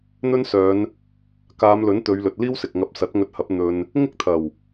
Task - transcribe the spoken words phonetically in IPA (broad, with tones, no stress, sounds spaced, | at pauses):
n̪ ɵ˥ n s œː˨˧ n | k aː˨˧ m l ɵ˨˥ n t̪ ɵ˨˧ ɥ l ɵ˨ t̚ l iː˥ w s ɪ˨ k̚ ŋ ɐ˧ p̚ s ɐ˨˥ t̚ ŋ ɵ˧ t̚ h ɐ˨˥ p̚ n̪ ɵ˧ n | ŋ ɪ˥ k̚ t̪ʰ ɐ˨˩ w